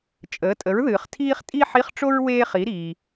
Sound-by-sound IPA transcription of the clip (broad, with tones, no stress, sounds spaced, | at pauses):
t͡ʃʼ əː˩˥ tʼ ə˩˥ ɹ ð ɨː˩ χ tʰ iː˥ χ tʼ i˥ ħ i˧˥˧ χ ʈ͡ʂ o˥ ɹ w eː˥ χ i˩˥ ɾ iː˩